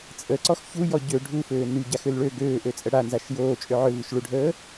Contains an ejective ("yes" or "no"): yes